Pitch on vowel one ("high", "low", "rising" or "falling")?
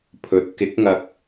rising